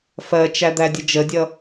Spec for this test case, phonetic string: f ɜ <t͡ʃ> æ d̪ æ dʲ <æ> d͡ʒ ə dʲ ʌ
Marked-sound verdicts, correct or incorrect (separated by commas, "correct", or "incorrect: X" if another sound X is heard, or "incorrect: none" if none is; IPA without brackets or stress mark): correct, incorrect: ə